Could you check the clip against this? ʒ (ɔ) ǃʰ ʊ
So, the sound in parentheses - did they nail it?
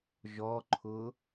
yes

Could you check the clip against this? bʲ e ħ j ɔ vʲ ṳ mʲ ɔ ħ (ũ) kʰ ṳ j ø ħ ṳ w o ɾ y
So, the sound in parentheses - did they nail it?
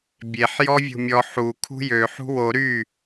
no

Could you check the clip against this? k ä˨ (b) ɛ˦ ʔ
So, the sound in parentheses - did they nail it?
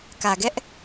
no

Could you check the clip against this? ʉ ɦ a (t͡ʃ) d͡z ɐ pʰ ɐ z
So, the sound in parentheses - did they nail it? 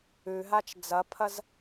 yes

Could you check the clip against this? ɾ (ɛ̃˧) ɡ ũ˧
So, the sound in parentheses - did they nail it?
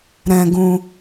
yes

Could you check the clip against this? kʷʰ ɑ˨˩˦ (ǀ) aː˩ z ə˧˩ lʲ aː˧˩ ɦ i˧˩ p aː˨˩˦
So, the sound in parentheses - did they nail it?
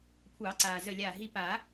yes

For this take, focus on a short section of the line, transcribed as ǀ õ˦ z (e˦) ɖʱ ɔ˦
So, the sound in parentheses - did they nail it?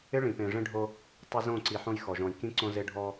yes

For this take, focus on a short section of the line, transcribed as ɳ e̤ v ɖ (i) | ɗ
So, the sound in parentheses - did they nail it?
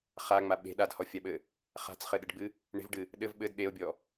no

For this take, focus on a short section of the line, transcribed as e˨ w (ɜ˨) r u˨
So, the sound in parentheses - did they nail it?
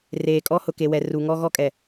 no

